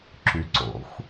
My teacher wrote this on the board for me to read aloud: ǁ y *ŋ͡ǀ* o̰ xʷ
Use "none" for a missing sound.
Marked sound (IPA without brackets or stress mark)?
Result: ǀ